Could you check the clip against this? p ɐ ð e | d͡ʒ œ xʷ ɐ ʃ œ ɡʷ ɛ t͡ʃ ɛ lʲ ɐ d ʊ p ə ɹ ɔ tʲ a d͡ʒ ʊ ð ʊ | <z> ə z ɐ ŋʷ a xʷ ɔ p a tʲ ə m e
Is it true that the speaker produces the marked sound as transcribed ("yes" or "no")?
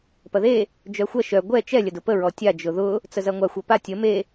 no